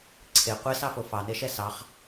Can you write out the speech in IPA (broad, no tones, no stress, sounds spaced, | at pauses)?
ǀʰ e qʷ e s ɑ f o f ɑ n e ʃ ɛ s ɑ χ